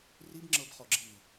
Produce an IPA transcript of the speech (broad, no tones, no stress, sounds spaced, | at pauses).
r i b ŋ͡ǁ ɤ b χ ɔ ɡ͡ǁ i